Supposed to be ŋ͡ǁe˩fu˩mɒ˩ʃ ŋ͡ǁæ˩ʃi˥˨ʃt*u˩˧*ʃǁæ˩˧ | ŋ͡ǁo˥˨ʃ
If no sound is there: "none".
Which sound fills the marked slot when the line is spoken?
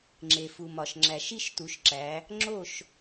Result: u˩˧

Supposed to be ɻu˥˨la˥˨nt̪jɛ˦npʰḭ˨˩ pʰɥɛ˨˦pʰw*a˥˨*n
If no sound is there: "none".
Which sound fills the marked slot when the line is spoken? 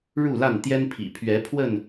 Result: ə˥˨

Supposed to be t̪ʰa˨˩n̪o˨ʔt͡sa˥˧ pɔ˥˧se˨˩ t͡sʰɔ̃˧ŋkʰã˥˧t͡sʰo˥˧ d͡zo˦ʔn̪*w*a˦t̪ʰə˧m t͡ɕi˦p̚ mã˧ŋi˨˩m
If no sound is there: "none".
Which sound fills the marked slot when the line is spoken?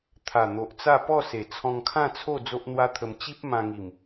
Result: w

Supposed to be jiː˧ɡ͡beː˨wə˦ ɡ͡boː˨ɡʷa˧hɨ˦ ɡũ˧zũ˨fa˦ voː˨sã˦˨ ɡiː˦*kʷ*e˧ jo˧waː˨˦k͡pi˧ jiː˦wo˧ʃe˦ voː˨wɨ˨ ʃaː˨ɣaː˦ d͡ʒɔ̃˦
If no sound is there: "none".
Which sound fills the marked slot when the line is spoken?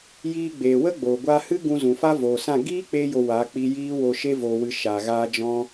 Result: k͡p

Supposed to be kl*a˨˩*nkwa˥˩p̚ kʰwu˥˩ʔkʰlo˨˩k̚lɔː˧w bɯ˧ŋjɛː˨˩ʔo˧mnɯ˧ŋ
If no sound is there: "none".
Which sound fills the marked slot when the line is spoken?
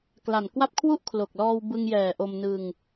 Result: a˨˩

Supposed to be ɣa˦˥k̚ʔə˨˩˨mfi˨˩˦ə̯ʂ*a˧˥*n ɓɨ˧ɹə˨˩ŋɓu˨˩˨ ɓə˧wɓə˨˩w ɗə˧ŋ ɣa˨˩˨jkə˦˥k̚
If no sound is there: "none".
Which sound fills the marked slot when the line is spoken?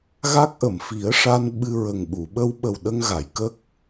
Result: a˧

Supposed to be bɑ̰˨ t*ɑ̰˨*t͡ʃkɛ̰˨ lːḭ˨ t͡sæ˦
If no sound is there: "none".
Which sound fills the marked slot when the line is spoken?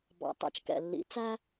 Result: ɑ̰˨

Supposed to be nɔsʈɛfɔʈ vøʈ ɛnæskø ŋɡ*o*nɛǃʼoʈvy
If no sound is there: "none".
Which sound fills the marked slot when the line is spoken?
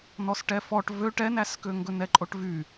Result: ɵ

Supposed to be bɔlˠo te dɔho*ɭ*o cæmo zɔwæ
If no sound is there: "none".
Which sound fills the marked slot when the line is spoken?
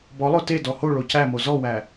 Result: ɭ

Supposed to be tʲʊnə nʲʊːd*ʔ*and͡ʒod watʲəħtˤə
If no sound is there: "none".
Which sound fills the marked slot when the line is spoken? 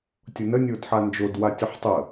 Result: ħ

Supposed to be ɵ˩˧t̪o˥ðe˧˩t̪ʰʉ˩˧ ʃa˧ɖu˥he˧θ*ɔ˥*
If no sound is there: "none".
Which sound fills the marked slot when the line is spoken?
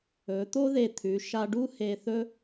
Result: ɵ˥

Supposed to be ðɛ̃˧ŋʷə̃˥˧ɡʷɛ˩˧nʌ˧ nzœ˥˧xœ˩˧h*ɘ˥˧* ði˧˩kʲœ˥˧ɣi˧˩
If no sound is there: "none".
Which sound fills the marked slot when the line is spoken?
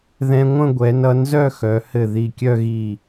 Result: ɘ˧˩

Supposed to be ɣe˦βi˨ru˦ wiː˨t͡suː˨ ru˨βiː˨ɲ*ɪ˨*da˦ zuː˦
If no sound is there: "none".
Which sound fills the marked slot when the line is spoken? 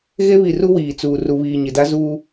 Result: ɪ˨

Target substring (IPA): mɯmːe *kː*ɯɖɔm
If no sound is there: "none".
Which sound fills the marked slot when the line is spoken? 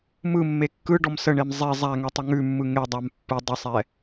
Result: kː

